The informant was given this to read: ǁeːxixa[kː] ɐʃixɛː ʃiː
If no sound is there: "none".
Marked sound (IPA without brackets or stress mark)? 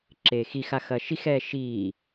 x